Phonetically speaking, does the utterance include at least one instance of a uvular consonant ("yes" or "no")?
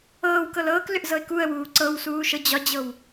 no